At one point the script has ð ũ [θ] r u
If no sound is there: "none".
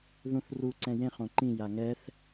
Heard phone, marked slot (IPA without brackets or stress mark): θ